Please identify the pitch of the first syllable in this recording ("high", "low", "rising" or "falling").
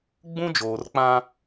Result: high